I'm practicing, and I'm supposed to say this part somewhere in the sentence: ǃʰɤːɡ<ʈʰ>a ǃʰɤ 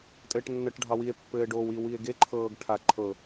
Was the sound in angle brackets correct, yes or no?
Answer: yes